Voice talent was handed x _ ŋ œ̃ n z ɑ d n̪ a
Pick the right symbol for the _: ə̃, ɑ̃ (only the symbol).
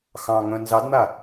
ɑ̃